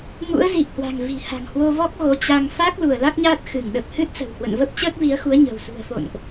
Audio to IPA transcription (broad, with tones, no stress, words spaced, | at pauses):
ŋṵ˧˥ə̯ zi˨˩p̚hwa̤˨˩ŋ vi̤˨˩ha̤˨˩ŋhwo˧vɔ˦˥k̚ ɣo˨˦t͡ɕa˧ŋ fa˦˥k̚ lu˧˩ə̯la˦˥k̚ɲaː˦˥t̚ xɨ˧˩ŋɗə˨˩p̚hɨ˦˥t̚sə̤˨˩w hwə̰˧˨nvə˦˥p̚ t͡ɕəː˦˥k̚vi˨˦ə̯xu˨˦ə̯ ɲə̤˨˩wsṳ˨˩ə̯fo̰˧˨nʔ